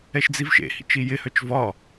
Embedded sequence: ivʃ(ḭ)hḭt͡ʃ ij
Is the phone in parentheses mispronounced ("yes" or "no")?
yes